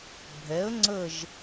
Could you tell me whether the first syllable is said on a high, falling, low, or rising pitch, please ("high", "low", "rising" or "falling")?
rising